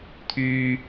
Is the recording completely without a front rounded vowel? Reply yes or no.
no